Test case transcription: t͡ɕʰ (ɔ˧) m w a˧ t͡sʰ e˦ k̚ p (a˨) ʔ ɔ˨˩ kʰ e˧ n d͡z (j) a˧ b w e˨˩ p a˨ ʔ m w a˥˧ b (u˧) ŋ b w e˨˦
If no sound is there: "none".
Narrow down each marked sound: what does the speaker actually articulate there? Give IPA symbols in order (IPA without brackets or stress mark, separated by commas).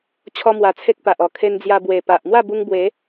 ɔ˦, a˨, j, u˧